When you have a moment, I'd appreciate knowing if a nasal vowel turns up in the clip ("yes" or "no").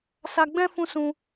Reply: yes